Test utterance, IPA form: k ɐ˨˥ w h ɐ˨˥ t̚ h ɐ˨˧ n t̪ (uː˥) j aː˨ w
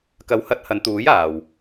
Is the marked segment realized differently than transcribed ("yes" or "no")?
yes